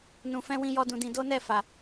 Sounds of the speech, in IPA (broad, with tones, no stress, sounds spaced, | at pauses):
n ũ˨ f ɛ̃˧ w ĩ˧ j ɔ˦ d ũ˧ d ĩ˧ d o˦ n ɛ˦˨ f a˨